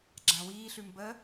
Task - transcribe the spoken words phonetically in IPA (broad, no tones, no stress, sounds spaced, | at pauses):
ɡ͡ǁ ã w iː ɬ ʉ m b ə